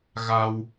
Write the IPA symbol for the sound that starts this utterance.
ɣ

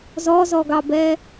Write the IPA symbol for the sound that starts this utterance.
z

